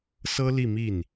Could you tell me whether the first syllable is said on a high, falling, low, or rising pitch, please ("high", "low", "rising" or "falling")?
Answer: high